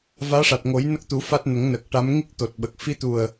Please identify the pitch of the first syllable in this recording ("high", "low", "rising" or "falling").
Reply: rising